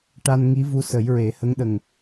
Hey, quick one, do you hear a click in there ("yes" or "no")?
no